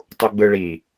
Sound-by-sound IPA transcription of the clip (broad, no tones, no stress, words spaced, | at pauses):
tˤuɡ͡bɯ ɭi